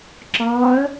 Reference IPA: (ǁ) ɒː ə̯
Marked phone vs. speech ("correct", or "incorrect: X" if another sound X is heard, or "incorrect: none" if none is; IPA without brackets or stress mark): correct